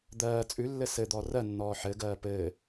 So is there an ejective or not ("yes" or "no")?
yes